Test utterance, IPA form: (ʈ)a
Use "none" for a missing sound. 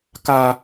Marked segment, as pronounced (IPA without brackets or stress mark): k